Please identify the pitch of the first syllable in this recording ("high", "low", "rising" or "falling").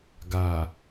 low